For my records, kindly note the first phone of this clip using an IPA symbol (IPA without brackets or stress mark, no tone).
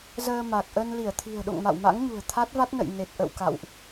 z